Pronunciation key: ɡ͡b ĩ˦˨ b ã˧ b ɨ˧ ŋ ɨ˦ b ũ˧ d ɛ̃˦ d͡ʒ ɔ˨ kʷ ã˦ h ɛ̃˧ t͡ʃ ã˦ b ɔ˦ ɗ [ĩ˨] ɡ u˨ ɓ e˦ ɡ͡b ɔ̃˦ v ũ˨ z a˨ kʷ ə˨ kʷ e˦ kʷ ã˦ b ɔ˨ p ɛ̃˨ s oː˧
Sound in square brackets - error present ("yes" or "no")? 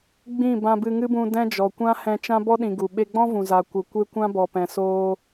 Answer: no